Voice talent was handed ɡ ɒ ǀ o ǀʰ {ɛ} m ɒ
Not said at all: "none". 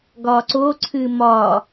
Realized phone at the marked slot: ɨ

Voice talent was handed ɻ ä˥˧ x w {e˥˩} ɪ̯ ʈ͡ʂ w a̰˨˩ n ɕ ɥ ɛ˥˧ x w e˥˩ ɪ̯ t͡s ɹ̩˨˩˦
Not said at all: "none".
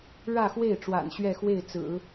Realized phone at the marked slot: e˥˩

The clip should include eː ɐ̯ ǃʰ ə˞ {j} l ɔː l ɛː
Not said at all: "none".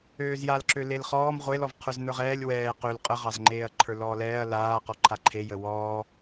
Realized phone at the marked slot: none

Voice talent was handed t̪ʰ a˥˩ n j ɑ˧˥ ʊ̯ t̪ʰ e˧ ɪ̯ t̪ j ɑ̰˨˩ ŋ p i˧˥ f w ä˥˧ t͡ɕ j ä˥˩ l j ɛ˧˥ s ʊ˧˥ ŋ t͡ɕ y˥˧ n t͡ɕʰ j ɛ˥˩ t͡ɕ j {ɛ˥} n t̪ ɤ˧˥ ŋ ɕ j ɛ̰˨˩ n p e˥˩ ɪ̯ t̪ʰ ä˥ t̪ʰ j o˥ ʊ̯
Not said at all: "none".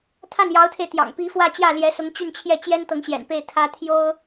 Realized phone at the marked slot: ɛ˥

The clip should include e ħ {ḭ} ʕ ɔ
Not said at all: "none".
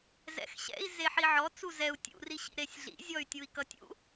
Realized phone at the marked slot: i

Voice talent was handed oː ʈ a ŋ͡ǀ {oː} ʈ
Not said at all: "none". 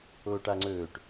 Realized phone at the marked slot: ɵː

